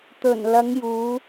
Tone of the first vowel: low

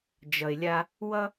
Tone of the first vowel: low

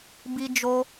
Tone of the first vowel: high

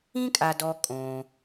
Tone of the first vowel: high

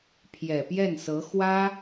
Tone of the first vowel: low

